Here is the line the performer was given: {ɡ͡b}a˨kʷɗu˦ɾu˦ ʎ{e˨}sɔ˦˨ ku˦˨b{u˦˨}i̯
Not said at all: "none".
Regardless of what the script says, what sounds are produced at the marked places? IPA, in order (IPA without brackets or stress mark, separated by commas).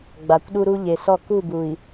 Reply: ɡ͡b, e˨, u˨